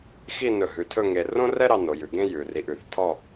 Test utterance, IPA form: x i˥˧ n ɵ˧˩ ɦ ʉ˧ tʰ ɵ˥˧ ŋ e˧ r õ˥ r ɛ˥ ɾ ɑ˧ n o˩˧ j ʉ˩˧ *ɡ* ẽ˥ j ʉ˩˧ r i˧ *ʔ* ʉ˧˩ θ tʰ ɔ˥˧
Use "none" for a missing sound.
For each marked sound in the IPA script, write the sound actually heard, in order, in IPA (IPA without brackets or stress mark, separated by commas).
ɡ, ʔ